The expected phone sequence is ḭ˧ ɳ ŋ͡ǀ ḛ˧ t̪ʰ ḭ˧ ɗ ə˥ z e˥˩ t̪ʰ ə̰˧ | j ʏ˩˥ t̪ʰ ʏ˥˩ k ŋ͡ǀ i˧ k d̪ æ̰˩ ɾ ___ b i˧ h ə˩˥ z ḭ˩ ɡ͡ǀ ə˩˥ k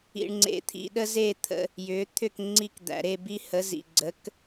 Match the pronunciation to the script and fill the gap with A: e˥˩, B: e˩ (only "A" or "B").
A